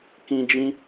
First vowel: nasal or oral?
nasal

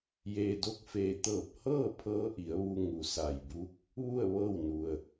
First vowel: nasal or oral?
oral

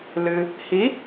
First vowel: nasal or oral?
oral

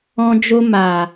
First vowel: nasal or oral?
nasal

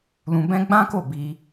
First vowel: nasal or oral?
nasal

